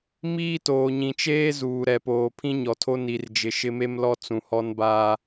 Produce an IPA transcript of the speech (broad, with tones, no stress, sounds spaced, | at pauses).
m iː˦ t oː˨ ɲ ĩ˨ t͡ʃ eː˦ z uː˨ ɾ ɛ˨ p oː˨ pʰ ĩ˦ ɲ ɔ˨ tʰ o˦ n i˨ r d͡ʒ ɪ˨ ʃ ɪ˦ m e˦ m l ɔ˦ t͡s ũ˨ h ɔ˦ n b aː˦